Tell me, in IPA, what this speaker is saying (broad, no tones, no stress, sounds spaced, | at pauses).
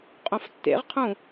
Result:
qʼ õ f tː ḛ ʁ qʰ ũ